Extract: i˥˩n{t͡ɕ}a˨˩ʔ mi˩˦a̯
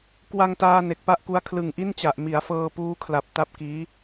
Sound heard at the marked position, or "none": t͡ɕ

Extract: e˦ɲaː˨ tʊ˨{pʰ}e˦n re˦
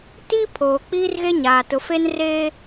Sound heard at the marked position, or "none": f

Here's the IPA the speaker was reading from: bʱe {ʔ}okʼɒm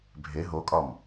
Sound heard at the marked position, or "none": ɦ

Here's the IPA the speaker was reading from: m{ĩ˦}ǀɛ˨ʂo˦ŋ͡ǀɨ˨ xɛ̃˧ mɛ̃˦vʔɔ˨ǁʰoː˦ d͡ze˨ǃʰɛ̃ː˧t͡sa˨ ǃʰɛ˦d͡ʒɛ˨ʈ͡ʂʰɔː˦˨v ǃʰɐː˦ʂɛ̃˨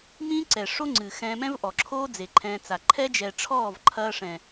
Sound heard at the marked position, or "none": ĩ˦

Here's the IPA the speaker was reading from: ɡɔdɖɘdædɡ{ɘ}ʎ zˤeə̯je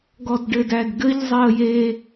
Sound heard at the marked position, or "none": ɘ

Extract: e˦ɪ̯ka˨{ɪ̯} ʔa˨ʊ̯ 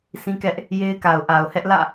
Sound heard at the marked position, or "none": ʊ̯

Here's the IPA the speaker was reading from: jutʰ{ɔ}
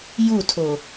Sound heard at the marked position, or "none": o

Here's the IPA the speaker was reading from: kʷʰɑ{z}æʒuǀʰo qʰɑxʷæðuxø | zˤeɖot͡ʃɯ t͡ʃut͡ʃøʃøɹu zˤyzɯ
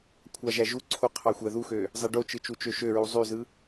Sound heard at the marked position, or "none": ʒ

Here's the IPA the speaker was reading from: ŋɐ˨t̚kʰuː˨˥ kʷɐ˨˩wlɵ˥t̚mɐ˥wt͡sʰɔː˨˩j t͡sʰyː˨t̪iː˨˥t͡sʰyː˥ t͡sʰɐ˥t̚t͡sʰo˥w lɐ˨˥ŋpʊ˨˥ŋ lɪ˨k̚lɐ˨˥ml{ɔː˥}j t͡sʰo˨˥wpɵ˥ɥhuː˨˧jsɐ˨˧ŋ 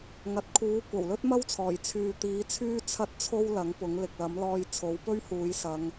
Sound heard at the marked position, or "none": ɔː˧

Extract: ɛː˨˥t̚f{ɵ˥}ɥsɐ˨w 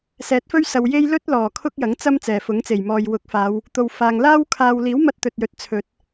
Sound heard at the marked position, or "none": ɵ˥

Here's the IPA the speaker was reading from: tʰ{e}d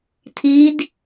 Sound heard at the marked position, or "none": i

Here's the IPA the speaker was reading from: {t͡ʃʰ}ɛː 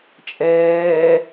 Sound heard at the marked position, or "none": t͡ʃʼ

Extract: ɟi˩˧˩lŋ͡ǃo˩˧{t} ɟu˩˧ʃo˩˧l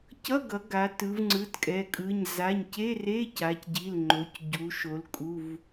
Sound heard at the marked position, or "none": c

